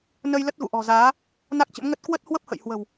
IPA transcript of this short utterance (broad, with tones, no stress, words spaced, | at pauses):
nə˧j lə˦˥t̚ɣṵ˧˨ʔɔ̤˨˩zaː˨˦ | na˦˥k̚t͡ɕə̰˧˥mŋə˦˥t̚ kwə˦˥t̚ hwə˦˥p̚hə̰˧˨jhwə̤˨˩w